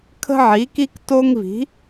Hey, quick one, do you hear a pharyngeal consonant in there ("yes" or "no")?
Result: yes